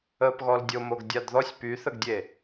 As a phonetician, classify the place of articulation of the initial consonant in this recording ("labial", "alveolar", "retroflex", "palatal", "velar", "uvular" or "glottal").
labial